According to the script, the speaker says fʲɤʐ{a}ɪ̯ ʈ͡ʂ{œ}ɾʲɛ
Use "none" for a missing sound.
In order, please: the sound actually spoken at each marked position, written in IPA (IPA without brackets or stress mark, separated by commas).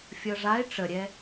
a, ə